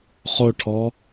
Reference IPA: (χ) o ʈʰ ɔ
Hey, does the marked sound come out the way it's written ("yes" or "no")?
yes